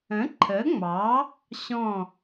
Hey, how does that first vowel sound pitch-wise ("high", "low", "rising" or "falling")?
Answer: rising